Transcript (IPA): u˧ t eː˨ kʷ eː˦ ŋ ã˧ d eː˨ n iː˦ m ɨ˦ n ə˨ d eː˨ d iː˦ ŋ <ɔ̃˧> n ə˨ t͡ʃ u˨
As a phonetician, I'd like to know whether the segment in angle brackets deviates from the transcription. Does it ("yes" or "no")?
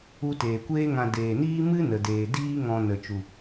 no